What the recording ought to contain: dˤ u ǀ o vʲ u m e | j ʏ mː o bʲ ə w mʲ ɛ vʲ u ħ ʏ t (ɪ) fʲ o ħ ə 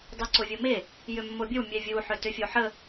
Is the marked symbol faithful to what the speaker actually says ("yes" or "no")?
no